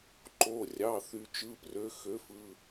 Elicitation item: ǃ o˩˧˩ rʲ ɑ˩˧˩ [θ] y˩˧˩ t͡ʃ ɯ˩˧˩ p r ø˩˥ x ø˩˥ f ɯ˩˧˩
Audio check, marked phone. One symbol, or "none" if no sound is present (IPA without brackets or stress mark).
θ